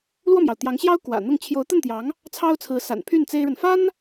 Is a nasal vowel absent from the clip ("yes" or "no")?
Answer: yes